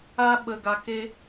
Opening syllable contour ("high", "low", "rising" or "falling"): high